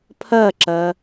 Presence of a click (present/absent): present